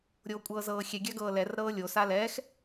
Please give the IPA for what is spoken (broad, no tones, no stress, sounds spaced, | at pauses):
ɾʲ oː kʷʼ ɤː z ɤː xʲ ɛ ɡʲ a ɡ ɤː l ɛ r ɾ ɤː lʲ o s a l ɛː x